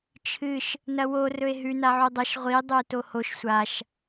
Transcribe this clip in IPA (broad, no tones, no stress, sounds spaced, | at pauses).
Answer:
t͡ʃʰ ɨ ʃ | n ɐ w o r ɵ e̯ ɦ ʉ n a ʕ u dˤ ɐ ʃ ʁʷ i dˤ u e̯ t o h o ʃ sʷ a ʃ